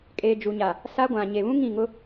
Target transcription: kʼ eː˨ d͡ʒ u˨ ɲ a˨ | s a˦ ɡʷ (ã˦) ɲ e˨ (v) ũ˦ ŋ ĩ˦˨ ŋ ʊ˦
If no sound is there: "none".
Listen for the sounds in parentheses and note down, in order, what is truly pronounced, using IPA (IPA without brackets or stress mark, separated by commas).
ã˨, β